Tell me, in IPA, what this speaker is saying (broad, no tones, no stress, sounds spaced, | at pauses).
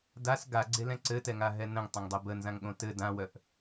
d a s ɡ a ɡ͡ǀ e l ɛ̃ ǀ ɘ t ɛ ŋ a ɦ ɛ n ə̃ ŋ tˤ ə̃ ŋ dˤ œ b ə n z ã ŋ ɠ õ t ɘ d ã w œ ʔ